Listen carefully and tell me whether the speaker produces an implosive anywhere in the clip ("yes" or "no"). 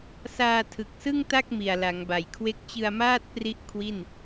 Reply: no